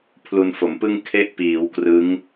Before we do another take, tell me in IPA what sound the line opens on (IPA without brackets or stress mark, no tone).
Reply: pʰ